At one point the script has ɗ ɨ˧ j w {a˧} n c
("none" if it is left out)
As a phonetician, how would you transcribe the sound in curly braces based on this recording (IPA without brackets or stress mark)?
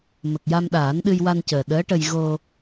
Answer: a˧